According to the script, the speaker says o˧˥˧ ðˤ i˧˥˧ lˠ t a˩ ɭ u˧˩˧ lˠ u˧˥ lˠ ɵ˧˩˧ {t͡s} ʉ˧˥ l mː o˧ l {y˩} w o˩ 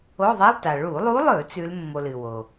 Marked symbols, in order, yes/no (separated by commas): yes, no